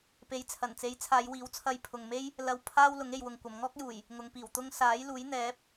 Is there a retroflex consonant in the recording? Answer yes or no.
no